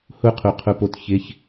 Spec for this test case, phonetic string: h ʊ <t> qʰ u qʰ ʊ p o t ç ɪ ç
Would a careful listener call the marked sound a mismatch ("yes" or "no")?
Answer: yes